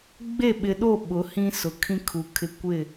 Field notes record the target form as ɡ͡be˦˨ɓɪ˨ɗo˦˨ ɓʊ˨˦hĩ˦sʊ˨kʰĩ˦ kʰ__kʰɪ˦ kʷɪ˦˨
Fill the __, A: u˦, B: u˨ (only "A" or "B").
B